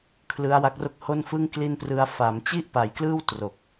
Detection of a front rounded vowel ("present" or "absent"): absent